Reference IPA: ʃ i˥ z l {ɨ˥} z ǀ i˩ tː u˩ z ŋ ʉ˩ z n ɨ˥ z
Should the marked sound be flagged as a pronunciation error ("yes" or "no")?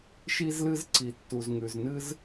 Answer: no